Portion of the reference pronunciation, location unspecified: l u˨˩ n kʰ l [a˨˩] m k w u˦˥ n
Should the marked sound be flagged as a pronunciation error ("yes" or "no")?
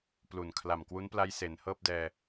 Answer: no